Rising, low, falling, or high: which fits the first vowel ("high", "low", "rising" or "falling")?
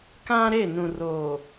high